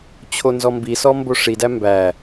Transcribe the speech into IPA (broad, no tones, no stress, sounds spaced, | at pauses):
t͡ɕʰ o n z ɔ m b i s ɔ m b o ʂ i d æ m b æ